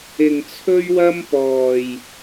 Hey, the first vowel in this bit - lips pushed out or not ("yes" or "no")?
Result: no